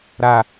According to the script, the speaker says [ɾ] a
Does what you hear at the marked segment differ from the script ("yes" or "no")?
no